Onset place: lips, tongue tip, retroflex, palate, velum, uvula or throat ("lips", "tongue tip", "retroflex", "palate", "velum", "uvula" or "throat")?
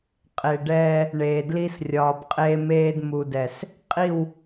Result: uvula